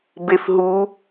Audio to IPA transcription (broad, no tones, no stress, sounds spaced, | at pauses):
b e f ɦ u